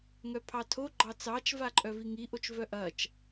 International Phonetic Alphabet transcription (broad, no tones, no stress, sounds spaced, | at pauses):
ŋ œ pʰ ɑ tʰ o ɡ͡ǃ ɑ t͡s ɑ t͡ʃ v a ǃʼ œ v i ŋ i ʔ o t͡ʃ v œ ʔ ɐ t͡ʃ